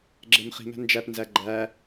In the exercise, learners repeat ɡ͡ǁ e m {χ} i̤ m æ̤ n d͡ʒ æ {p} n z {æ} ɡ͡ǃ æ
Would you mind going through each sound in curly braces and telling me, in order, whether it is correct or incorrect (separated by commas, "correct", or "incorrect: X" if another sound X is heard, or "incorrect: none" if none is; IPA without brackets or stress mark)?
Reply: correct, correct, correct